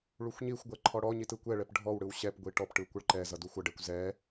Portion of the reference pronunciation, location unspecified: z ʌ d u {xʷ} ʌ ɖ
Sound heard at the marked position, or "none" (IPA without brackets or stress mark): xʷ